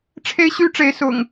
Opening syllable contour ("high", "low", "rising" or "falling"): high